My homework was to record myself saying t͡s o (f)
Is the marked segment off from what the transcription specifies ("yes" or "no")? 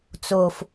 no